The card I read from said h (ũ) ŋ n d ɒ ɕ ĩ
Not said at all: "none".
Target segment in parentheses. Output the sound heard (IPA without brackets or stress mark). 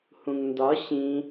ũ